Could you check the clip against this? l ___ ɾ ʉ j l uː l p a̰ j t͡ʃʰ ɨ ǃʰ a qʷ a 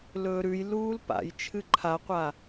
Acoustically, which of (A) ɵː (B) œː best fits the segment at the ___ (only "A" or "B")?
A